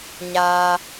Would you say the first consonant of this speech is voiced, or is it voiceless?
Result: voiced